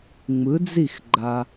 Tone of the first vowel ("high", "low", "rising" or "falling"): rising